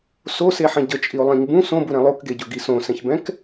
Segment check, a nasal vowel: present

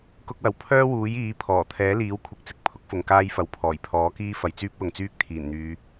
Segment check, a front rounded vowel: present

